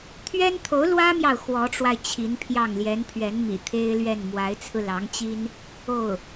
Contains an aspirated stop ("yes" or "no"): yes